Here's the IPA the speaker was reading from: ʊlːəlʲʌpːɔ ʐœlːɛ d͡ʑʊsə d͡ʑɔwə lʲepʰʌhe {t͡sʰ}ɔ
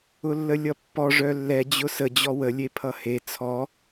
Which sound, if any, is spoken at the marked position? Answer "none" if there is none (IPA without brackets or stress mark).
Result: t͡sʰ